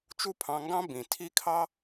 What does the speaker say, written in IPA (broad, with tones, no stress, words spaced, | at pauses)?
t͡ʃu˦pʰɑ̃˧ŋɡɑ̃˦ bĩ˨ tʰi˦kʰɑ˦